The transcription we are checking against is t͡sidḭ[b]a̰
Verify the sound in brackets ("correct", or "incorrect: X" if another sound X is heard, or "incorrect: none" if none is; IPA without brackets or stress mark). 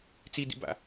correct